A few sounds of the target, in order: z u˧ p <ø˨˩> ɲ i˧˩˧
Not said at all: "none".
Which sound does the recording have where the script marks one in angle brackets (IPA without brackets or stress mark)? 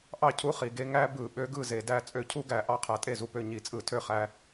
ø˥˩